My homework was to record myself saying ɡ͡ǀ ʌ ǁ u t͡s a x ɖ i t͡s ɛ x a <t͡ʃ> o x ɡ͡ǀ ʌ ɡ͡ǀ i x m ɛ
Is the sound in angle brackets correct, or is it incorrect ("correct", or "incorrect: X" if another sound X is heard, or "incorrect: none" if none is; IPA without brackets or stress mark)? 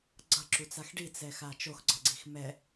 correct